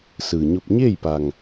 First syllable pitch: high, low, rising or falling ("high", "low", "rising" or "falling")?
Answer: low